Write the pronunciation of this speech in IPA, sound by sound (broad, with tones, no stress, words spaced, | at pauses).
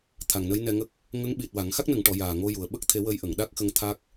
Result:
t̪ʰa˨˩ŋnə˧˥jnɛ˧ŋə˦˥k̚ | ŋə˧˥ŋɓi˨˩t̚wa˨˩˨ŋ xa˦˥k̚nə˨˩˨ŋʈɔ˨˩˨ jaː˨˩ŋo˧ ju˨˩ə̯ ɓə˦˥k̚t̪ʰe˨˩˦ wə˧˥jʔə˨˩˨ŋ ɗa˦˥k̚xə˧ŋ t̪ʰa˦˥k̚